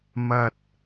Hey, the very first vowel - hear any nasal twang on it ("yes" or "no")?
no